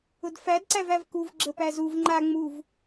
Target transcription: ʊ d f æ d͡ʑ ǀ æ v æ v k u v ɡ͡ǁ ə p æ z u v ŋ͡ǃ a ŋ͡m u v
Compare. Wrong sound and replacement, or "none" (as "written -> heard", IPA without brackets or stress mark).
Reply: d͡ʑ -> d